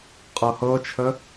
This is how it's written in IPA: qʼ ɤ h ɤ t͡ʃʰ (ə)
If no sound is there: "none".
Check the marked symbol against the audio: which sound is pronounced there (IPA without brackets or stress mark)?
ə